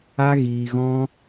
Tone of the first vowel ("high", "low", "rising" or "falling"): high